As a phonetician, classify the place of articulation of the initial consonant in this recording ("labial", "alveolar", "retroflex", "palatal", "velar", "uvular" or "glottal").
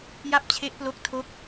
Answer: palatal